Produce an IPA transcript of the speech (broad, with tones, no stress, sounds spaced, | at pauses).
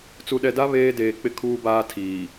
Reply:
t͡s u˨ ɗ ɛ˨ d a˦ β eː˦ d eː˨ k͡p ɪ˦ kʰ uː˦ b aː˦ tʰ iː˨